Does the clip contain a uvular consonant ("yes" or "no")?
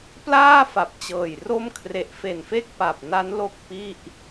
no